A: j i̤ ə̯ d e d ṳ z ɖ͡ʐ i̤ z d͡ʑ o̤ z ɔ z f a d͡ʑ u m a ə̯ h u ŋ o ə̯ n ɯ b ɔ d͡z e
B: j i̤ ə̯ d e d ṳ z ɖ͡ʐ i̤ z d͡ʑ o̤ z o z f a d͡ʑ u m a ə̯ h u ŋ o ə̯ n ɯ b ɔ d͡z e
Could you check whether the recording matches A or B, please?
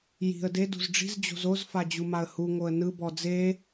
B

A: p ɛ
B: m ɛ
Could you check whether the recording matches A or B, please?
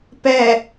A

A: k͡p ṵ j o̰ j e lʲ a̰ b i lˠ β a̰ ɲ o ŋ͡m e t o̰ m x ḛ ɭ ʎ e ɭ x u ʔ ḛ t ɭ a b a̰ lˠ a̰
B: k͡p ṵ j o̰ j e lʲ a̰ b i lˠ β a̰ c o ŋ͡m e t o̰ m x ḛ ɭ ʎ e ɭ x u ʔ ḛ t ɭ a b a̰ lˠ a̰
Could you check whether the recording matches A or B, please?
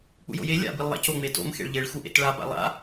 B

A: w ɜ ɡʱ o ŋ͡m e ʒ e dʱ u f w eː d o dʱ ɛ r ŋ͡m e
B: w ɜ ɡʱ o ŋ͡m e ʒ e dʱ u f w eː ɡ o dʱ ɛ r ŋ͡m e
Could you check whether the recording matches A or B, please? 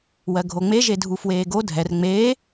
B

